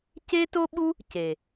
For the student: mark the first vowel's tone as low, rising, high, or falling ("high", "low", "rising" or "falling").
high